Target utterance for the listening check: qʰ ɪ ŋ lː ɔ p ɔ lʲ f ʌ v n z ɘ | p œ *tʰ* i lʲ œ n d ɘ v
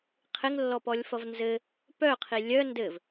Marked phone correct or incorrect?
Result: incorrect